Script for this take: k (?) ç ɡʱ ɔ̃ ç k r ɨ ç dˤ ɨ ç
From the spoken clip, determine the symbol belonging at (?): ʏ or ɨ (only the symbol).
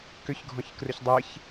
ʏ